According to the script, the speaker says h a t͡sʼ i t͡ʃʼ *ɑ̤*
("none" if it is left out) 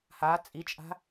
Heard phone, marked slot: a̤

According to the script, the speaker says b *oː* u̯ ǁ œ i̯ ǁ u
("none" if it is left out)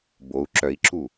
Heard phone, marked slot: o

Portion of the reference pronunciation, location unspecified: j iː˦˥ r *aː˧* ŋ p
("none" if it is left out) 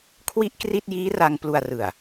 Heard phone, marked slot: a˧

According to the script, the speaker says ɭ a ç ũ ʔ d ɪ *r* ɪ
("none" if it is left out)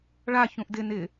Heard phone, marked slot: n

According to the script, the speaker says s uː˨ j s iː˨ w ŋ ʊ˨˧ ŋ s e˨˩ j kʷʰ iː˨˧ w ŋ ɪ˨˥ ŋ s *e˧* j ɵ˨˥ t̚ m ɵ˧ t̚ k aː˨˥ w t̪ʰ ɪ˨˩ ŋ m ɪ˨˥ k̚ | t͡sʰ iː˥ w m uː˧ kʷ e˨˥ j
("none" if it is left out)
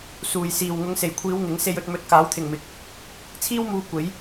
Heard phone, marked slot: e˧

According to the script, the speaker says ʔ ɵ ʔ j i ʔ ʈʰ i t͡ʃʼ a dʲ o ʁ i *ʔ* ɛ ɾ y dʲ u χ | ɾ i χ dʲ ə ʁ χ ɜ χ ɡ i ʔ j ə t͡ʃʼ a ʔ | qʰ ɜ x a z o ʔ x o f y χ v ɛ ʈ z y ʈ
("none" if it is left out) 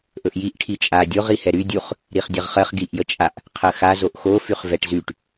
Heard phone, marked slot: h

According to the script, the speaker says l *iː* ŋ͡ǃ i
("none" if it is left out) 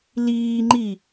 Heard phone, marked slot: iː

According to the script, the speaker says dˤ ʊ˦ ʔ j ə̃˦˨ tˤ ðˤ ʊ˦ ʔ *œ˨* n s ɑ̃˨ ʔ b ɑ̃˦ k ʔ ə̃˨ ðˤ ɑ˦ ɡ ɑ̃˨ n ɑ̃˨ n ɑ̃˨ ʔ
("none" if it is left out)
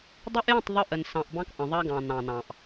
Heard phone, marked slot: ə˨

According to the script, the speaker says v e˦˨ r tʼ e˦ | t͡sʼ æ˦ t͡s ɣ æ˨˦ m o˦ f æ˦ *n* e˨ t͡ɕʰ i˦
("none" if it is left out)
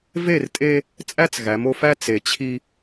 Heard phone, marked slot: t͡s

